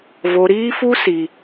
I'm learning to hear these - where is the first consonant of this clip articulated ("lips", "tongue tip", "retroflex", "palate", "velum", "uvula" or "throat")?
lips